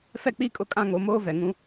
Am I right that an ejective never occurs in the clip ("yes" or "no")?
no